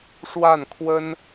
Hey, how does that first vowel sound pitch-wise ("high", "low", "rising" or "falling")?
falling